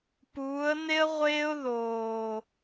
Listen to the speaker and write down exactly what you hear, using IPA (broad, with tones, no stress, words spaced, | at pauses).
puː˨˦ə̯ne˥ə̯ ʁʷeː˥ʊ̯ðoː˨˩